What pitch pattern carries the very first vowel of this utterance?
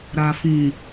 low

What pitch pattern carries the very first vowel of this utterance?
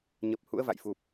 low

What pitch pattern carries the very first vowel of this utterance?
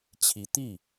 rising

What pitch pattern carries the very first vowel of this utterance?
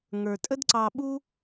low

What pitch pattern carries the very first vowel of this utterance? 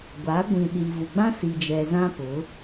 rising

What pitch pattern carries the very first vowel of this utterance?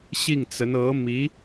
falling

